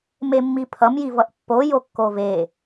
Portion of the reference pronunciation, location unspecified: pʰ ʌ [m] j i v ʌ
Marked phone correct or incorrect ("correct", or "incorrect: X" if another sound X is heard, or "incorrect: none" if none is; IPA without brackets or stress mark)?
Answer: correct